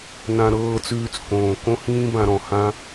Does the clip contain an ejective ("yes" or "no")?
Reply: no